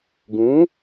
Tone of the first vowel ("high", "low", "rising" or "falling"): rising